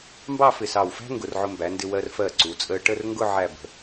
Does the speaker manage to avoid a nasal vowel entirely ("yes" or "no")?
yes